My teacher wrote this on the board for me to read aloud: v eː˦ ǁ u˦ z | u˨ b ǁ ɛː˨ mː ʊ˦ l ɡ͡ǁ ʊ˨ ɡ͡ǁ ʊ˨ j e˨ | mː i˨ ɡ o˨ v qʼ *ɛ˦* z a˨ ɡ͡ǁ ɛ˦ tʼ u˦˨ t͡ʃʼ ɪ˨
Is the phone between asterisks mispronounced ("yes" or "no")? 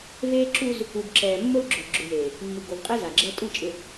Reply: yes